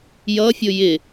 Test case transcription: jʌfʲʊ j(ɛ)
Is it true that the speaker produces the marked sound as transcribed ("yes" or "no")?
no